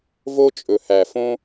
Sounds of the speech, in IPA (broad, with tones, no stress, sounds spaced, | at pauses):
v o˧ t͡ʃʼ ɵ˨ h æ˨ f õ˦